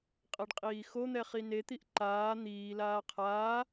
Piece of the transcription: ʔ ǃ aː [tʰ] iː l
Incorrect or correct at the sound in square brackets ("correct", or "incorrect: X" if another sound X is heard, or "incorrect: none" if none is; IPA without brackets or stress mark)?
incorrect: n̪